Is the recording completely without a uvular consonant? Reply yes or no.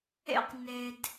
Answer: no